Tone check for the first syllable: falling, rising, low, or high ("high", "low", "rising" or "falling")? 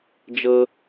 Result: high